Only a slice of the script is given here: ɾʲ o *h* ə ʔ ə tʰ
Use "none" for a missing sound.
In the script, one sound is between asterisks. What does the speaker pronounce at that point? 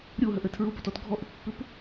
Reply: ɦ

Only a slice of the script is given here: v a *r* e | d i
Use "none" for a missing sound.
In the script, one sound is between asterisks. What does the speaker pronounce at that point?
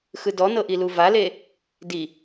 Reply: l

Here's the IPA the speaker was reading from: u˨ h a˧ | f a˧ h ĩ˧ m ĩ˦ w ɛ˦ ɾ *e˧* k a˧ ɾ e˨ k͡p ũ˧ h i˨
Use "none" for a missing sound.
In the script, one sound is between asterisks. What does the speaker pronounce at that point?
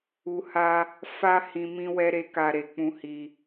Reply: e˦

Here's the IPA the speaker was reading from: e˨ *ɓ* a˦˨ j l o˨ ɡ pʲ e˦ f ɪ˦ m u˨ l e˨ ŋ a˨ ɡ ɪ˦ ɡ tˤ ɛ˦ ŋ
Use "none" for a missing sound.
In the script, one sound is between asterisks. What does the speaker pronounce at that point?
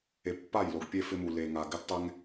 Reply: pː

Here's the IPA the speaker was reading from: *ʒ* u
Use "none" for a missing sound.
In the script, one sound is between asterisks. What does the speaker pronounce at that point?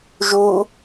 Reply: ʒ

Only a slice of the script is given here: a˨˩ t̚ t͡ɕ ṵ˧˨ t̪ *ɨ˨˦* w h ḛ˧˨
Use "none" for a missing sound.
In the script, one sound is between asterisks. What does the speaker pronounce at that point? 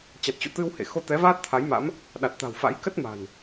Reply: ɨ˧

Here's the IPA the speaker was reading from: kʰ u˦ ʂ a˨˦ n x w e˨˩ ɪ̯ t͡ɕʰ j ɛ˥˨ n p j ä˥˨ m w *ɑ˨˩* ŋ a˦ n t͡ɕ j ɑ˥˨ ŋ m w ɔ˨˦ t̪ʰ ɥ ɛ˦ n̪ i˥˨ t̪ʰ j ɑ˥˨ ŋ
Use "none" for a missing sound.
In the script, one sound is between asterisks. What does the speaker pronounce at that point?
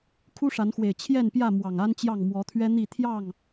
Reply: ɑ˨˩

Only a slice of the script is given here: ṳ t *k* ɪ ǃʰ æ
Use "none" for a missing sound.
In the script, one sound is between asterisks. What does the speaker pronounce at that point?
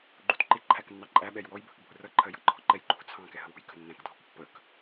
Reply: ǃ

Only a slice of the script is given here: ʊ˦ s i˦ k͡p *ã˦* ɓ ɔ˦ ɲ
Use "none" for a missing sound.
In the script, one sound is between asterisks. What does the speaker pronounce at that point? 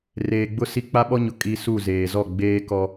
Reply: a˦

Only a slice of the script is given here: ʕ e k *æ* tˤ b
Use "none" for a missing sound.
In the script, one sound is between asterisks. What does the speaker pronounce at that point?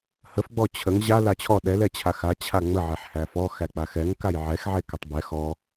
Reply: ɛ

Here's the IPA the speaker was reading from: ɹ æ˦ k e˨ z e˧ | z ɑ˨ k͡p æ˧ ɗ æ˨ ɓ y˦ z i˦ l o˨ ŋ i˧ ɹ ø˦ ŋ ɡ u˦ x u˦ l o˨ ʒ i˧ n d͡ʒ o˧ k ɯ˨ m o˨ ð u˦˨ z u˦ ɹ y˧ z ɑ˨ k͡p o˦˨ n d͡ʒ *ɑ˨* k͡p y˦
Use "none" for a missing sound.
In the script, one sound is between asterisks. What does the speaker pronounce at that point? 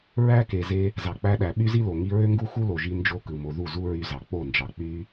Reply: ɑ˨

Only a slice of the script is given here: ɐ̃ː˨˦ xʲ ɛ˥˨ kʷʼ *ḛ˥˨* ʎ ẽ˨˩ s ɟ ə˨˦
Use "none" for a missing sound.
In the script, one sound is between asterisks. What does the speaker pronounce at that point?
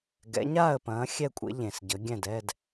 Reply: ḛ˨˦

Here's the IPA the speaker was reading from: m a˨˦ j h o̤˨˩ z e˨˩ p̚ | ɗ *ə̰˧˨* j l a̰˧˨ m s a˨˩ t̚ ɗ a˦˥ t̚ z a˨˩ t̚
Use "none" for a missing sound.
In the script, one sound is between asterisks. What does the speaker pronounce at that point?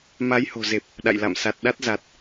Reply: a̰˧˨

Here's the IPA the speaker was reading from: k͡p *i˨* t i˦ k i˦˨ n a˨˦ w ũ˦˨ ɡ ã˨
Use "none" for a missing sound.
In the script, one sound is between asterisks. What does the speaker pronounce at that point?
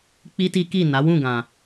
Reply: i˦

